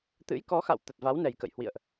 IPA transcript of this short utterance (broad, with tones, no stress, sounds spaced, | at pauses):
t̪ ɨ̰˧˥ j k ɔ˨˦ x a̰˧˨ w t̪ ə˨˩ t̚ v a˨˦ w n ɛ˨˩ j k ə̰˧˨ j h w ḭ˧˨ ə̯ ʔ